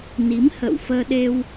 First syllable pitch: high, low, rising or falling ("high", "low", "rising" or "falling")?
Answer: rising